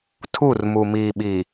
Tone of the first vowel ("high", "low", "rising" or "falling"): falling